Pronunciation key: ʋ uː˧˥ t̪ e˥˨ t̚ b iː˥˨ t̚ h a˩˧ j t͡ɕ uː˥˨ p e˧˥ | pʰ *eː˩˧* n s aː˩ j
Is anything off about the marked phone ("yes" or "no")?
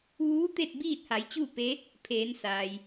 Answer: no